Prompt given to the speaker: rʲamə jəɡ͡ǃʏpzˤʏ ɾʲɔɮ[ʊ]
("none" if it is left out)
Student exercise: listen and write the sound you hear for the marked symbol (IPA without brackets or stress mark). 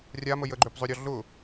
ʊ